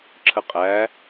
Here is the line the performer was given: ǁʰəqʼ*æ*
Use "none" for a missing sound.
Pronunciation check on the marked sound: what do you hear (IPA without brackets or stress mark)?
æ